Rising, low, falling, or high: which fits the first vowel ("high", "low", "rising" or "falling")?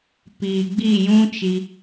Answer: low